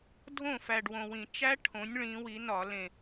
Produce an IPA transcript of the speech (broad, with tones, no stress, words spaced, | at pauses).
dʱõ˥˩fæ˨˩ɖ wõ˨˩wĩ˧˩˧ t͡ʃæ˦˥ ʈʰõ˩˥nʲ ɭĩ˩˧wi˩˧nɒ˧˩˧ lẽ˨˩